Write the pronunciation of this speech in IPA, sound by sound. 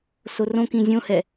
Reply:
sorõkĩ zʲõhɛ

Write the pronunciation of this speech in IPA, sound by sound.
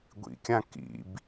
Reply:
ɡʷḭkʲã kḭb

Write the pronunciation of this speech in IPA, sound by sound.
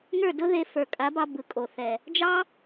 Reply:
ŋə˞˦˨dʊ˦ðe˧ fə˞˨kʼa˨˦bɑ˧ bɯ˨kʼo˨θɛ˨ | d͡ʒɑ˦

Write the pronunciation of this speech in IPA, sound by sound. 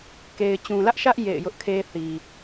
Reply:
ke˨ɪ̯t͡ɕũ˨lä˦ʔʃä˦ʔ jḛ˦˨ɪ̯ jʊ˦ʔkʰe˦θi˨

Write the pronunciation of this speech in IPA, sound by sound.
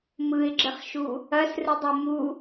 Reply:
mɯɪ̯ɡ͡ǁɘχʃu | ɐsrɯdˤu mu

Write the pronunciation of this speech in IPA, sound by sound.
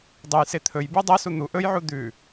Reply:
dˤɵj set̪ʰɵj bʉdˤɐ sun̪u ʔɵjʕu d̪ʉ

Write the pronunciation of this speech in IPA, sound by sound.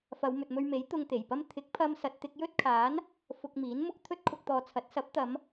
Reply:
fɐ˨˧wmɵ˨t̚mɵ˧ɥme˨˥j t̪ʊ˧ŋt̪e˨˩jpɐ˥m t̪ʰɪ˨˥k̚pʰɐ˧msɐ˨t̚ t̪ɪ˧k̚jɵ˥t̚kʰaː˨˥n | fʊ˧k̚miː˨˥nmʊ˥k̚ t̪ʰɵ˥t̚kʰʊ˧k̚t̪ɔː˨˧t͡sʰɐ˨˥t̚ sɐ˨˥p̚t̪ɐ˨˧m

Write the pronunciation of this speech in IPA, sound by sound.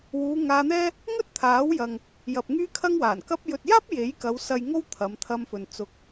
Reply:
wuː˨˧ŋaː˧n̪ɛː˥ | ŋɵ˥t̚t̪ʰaː˨˥wjɐ˨ŋ | jɐ˨p̚ŋyː˥kʰɐ˥ŋwaː˨˩n kɐ˧p̚jɵ˨t̚jaː˥p̚ je˨˥jkɐ˨˧w sɐ˨j ŋo˥wt̪ʰɐ˨˧mt̪ʰɐ˧mfɵ˨n t͡sʊ˨k̚

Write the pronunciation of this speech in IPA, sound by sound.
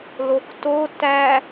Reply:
lokto tæ

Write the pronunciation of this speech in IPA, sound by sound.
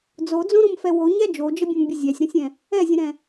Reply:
d͡zod͡zõɾõmfɛ woɲæ d͡ʒod͡ʒəbʲõmbʲə zʲæsʲɾõsʲɛ̃ | ɛzʲə̃ɾɛ̃

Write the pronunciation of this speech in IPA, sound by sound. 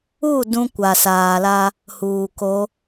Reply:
u˦˨ dũ˦kʷa˨saː˨la˦ | huː˨ko˨˦

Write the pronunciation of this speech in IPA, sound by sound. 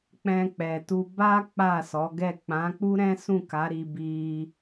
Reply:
k͡pɛ̃˧k͡pɛ˨tu˧ ba˦ k͡pa˦˨sɔ˨˦ɡɛ˦˨ k͡pã˨˦k͡pu˦ɾɛ̃˦ sũ˦˨ ka˨˦ɾi˧bi˧

